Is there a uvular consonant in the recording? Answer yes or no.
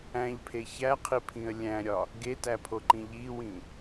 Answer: yes